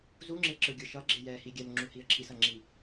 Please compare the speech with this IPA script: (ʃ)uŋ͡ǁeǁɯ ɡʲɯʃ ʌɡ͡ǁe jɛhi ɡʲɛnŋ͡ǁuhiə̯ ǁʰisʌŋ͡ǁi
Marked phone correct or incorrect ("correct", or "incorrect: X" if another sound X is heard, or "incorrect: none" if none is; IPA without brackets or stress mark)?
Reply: incorrect: z